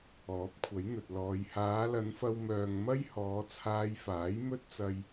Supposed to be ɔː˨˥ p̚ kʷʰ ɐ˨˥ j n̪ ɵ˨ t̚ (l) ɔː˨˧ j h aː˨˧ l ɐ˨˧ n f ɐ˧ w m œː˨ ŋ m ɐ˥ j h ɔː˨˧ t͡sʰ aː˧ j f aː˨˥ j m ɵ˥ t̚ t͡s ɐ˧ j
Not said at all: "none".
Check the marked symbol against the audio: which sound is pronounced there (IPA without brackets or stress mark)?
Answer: l